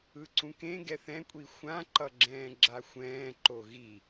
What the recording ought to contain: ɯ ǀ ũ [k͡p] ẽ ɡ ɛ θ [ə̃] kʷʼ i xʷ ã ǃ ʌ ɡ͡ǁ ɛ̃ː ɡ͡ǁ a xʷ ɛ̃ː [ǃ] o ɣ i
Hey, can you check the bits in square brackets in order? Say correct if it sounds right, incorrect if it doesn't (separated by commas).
incorrect, incorrect, correct